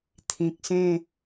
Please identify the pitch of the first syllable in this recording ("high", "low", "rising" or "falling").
low